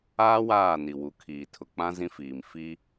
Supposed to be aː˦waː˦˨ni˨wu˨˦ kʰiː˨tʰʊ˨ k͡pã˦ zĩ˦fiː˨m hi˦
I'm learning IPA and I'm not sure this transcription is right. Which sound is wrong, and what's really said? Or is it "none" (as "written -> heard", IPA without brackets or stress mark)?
h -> f